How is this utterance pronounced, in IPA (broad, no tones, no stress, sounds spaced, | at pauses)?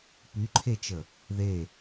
p y ǃʰ e t͡ʃ ə | ð e